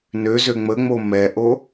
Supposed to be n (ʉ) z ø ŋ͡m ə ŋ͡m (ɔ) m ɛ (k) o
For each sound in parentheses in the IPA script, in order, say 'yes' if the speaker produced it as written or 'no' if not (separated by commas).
no, no, no